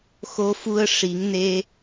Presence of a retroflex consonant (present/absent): present